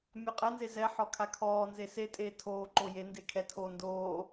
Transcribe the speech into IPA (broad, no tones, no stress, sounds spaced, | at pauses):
mʲ ɔ qʼ ɛ n z e z ɛ ħ ɔ kʰ a kʰ ɔː n z e s e tʼ eː tʰ oː ǃ o j e n d e kʰ ɛ tʰ oː n d oː